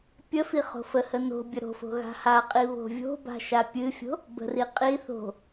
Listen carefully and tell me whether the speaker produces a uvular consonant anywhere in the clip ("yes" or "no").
yes